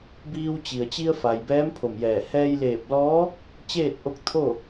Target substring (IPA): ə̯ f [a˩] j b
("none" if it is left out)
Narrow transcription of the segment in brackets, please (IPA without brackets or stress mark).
a˩